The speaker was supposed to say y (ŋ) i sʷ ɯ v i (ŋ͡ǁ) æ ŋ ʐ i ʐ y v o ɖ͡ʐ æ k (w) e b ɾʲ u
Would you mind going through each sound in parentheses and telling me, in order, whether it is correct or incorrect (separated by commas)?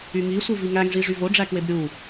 correct, incorrect, correct